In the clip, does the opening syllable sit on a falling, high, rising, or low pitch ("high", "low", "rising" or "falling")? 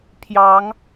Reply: rising